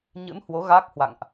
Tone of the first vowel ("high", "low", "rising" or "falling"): rising